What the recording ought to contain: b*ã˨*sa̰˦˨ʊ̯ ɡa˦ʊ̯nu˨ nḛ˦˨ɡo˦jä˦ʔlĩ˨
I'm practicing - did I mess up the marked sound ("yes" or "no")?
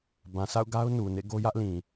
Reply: no